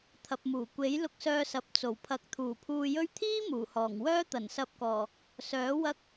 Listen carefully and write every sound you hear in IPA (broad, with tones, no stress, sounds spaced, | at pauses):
t̪ʰ ɐ˨ p̚ m uː˨˩ kʷ e˨˥ j l ʊ˧ k̚ s œː˧ s ɐ˨ p̚ t͡s o˨˩ w pʰ ɐ˨˥ k̚ t̪ʰ uː˨˩ pʰ uː˧ j ɵ˥ ɥ t̪ʰ iː˥ m uː˨˩ h ɔː˨˩ ŋ w œː˥ t̪ ɐ˨˩ n s ɐ˧ p̚ k ɔː˨˩ | s œː˨˥ w ɐ˥ k̚